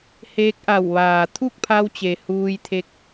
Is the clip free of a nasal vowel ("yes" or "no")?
yes